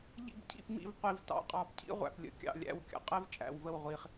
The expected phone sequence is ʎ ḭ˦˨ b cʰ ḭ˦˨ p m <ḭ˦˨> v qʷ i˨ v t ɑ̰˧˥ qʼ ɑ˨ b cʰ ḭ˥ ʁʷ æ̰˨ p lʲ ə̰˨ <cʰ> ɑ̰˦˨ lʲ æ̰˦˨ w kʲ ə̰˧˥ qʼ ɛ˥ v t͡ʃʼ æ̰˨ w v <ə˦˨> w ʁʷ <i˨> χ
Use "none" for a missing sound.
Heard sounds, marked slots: ḭ˦˨, kʲ, ə˦˨, i˨

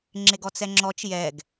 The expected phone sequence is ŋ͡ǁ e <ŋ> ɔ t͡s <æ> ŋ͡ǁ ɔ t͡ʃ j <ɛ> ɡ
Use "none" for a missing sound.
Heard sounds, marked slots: ɡ, ɛ, ɛ

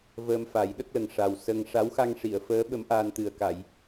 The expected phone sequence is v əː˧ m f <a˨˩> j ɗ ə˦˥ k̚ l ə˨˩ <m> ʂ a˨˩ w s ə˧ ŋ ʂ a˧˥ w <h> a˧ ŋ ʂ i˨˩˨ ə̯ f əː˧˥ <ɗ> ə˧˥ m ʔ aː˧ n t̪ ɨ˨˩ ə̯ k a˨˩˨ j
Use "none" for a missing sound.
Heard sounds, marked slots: a˨˩˦, ŋ, x, ɓ

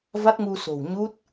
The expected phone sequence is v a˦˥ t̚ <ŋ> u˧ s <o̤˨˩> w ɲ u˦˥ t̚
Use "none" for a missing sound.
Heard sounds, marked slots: ŋ, o̤˨˩

